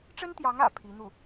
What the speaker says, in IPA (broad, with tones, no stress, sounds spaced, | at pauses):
ʈ͡ʂ ə˥ n t̪ j ɑ˧˥ ŋ ä̰˨˩ pʰ i˧˥ n̪ u˥˩